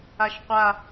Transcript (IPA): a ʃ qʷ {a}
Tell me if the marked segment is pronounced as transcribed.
yes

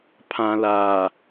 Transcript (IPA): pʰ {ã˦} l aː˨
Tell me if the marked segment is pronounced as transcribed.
no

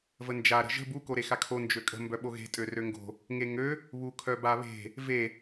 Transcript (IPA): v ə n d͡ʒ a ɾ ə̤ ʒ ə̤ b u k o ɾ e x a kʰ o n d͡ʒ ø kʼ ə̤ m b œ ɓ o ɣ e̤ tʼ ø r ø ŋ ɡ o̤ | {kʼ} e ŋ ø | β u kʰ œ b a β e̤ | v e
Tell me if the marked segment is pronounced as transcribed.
no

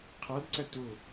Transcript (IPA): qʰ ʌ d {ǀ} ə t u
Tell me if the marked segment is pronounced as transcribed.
yes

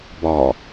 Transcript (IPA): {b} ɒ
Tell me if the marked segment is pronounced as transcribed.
yes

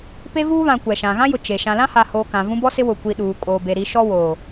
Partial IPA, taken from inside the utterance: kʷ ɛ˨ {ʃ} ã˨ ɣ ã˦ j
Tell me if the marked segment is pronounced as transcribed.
yes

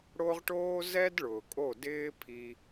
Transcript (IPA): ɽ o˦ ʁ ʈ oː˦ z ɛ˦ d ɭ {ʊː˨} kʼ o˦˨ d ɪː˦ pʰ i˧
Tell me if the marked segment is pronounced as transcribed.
yes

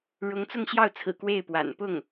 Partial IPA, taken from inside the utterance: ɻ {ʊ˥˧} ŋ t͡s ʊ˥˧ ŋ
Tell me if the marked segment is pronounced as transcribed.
no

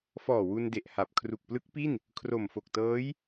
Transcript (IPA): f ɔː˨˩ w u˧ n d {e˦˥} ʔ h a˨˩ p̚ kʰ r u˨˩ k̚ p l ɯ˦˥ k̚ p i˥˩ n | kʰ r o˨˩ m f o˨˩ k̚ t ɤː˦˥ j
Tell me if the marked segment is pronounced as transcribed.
no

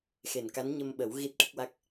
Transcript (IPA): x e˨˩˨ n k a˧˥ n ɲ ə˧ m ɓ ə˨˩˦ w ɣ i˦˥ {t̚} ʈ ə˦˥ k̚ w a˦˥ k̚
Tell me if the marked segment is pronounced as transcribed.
yes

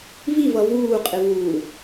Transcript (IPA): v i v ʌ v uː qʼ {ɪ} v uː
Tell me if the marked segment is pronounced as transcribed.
yes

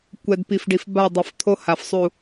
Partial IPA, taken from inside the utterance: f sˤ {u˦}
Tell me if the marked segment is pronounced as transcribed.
no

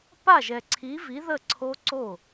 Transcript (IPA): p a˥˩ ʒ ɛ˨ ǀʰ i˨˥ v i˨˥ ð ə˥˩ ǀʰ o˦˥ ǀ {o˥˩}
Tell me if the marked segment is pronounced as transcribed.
yes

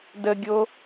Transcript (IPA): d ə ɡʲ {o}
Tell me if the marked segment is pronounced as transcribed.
yes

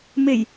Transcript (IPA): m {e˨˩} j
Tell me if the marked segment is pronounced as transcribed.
yes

